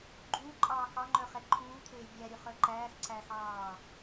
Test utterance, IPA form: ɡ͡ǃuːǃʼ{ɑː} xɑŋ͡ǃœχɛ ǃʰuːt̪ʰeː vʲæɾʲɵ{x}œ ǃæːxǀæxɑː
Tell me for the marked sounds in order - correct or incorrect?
correct, incorrect: χ

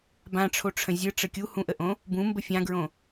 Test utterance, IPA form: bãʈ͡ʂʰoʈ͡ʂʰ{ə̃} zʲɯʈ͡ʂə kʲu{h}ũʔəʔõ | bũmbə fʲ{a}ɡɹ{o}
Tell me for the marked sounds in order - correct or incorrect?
correct, correct, incorrect: ã, incorrect: õ

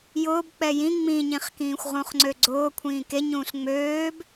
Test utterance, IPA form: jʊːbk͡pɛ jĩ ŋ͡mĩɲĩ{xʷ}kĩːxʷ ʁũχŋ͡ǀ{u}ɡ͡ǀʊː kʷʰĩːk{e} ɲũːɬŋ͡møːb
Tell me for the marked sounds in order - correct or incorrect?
incorrect: χ, incorrect: ø, correct

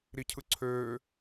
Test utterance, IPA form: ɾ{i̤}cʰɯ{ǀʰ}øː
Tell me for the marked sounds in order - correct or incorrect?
incorrect: i, correct

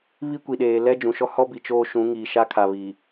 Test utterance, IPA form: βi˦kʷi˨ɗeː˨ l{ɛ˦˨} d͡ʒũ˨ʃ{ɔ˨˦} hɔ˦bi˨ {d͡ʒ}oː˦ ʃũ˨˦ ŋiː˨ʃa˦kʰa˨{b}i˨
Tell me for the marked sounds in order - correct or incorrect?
incorrect: ɛ˦, incorrect: ɔ˦, incorrect: t͡ʃ, incorrect: β

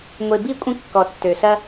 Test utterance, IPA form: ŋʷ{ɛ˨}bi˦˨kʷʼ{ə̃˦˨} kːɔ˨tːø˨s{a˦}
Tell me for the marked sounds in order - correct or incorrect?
incorrect: e˨, correct, incorrect: ɐ˦

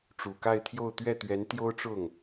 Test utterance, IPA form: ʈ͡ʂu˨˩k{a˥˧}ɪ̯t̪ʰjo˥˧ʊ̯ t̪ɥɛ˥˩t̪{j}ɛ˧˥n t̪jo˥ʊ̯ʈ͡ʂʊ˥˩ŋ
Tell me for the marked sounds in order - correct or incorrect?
correct, incorrect: ɥ

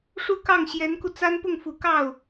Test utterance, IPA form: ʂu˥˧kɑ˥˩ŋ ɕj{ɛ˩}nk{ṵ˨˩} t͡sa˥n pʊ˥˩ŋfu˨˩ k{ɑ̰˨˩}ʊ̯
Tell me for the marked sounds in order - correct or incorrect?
incorrect: ɛ˧˥, incorrect: u˧, incorrect: ɑ˥˩

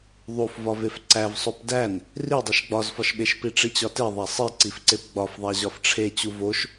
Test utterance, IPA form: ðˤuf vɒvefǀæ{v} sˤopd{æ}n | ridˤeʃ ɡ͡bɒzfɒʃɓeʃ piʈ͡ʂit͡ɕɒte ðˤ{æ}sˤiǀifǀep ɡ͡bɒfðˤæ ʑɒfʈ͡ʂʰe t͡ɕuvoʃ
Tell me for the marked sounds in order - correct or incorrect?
correct, correct, correct

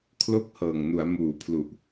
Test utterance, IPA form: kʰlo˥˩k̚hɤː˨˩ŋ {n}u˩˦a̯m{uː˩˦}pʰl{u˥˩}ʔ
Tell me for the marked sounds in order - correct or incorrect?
correct, correct, incorrect: u˨˩

